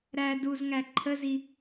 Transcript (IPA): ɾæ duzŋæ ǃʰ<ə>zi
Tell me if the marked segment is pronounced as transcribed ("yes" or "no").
yes